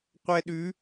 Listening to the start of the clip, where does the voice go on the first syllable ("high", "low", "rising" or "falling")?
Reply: high